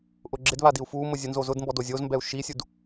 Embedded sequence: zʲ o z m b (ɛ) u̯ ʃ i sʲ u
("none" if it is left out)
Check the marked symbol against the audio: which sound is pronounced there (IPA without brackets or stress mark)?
ɛ